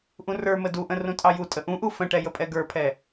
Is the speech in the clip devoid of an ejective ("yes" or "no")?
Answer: no